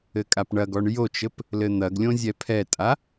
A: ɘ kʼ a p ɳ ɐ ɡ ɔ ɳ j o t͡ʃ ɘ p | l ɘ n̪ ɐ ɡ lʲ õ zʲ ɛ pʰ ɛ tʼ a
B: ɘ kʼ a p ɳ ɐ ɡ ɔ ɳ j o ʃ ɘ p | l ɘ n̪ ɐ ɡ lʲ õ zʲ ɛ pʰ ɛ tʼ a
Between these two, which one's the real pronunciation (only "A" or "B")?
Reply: A